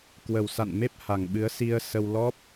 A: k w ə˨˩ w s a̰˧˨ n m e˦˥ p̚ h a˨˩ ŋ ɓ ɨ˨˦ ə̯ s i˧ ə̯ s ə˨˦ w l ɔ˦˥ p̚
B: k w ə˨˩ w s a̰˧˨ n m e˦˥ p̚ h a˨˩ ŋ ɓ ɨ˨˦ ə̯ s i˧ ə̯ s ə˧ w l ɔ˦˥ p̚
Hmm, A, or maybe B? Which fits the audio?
B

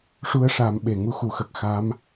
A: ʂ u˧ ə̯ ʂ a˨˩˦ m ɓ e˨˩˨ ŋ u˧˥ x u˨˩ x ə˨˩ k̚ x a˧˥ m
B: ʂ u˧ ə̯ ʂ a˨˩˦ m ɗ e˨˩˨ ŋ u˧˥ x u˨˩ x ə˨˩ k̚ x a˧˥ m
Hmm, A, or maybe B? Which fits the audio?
A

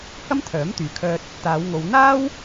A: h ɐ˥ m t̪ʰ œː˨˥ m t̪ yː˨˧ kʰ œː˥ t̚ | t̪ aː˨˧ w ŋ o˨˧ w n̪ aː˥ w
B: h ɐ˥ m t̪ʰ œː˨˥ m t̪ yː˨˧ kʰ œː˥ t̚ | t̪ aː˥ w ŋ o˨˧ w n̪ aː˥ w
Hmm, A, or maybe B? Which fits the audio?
A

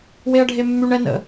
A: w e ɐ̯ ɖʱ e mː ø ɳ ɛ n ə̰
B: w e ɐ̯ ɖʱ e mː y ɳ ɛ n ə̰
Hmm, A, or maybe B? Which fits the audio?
B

